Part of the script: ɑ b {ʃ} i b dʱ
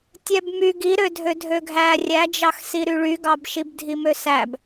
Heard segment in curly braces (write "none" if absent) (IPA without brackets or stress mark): ʃ